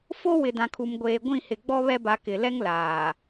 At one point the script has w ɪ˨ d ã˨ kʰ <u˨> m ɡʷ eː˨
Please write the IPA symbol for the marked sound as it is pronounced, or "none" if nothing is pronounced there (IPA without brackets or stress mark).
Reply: u˨